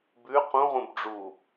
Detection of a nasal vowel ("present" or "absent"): present